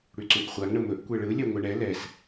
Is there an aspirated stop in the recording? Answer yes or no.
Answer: no